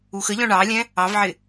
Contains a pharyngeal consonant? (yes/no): yes